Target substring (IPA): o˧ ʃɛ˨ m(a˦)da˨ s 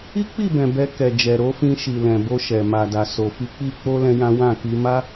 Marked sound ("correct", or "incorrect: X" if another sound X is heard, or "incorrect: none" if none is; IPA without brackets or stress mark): incorrect: a˨